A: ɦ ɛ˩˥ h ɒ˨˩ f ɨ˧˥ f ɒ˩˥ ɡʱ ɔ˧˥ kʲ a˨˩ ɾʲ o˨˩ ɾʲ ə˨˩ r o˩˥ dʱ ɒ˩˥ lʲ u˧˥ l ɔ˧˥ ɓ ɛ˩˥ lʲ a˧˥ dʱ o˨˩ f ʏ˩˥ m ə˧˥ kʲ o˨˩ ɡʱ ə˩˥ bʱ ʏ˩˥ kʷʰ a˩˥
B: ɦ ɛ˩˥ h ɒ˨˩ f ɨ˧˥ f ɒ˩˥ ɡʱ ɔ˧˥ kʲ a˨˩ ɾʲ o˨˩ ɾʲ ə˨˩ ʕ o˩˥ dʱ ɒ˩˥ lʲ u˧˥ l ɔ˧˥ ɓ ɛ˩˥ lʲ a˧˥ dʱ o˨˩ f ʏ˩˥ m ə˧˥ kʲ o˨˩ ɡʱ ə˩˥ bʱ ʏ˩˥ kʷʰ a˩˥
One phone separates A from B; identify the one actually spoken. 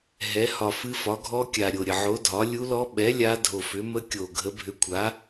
B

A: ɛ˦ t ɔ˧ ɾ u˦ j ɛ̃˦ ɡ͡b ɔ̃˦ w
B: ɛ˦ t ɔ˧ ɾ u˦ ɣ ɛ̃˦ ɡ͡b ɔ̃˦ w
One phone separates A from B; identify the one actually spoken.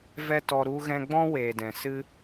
B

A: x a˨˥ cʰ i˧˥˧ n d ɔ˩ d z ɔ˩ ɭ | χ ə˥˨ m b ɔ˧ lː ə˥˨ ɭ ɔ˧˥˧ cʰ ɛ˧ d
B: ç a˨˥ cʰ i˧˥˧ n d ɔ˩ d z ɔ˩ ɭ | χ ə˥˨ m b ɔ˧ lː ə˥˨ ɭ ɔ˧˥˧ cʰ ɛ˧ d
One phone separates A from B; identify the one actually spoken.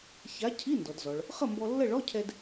B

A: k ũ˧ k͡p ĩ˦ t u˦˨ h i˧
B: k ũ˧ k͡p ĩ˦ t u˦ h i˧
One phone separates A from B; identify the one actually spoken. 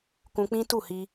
A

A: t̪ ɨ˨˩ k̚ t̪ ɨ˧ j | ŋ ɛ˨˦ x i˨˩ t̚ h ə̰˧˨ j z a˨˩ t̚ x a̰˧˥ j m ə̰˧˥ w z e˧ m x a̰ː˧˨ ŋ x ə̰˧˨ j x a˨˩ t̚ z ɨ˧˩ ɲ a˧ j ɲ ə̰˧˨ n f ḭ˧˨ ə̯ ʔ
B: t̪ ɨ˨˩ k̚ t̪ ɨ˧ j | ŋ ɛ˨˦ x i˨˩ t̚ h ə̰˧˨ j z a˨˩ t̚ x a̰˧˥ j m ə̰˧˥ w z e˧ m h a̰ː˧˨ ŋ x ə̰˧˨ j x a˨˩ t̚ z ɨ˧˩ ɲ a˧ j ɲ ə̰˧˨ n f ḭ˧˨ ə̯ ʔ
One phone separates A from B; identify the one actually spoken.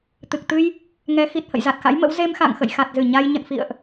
A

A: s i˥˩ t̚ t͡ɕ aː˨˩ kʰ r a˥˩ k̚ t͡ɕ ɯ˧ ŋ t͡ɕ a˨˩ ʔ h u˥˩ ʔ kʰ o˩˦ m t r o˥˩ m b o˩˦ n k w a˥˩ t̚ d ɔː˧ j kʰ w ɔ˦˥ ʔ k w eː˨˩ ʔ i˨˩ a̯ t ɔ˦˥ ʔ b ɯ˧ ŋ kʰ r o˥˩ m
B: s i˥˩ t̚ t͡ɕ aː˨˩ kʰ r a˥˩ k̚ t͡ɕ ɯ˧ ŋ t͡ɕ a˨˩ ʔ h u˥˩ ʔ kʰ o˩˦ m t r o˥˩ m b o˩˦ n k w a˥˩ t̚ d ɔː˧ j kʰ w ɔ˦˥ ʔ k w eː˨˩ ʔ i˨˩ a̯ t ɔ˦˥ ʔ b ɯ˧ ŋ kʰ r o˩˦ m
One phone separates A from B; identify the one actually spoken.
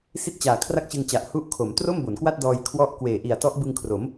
B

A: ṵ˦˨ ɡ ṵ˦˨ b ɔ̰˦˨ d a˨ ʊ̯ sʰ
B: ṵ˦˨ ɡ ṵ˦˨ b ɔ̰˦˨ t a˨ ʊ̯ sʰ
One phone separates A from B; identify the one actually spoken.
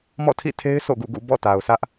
B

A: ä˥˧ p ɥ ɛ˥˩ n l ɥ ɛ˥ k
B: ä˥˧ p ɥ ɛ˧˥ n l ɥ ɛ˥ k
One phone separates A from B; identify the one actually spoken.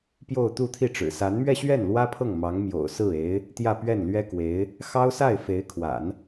A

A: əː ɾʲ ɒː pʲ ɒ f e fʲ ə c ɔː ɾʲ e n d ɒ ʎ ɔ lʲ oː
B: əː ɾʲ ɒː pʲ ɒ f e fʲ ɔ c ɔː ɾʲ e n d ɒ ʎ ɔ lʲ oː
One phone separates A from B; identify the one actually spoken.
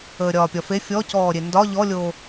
B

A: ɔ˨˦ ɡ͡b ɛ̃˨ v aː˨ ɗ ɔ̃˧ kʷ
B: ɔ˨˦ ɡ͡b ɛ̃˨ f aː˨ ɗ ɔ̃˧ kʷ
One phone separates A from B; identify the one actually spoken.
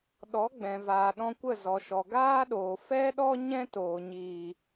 A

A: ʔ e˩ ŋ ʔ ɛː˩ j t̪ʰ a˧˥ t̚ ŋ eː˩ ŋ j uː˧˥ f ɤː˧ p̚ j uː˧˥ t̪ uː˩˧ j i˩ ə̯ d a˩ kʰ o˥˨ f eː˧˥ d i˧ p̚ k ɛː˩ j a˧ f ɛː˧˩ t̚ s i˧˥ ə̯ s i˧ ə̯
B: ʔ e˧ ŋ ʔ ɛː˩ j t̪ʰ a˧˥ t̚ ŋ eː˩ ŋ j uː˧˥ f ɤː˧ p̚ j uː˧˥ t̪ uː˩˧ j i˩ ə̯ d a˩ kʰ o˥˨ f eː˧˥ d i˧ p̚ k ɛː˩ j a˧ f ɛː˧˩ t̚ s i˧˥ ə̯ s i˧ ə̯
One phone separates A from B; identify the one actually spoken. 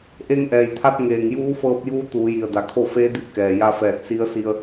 B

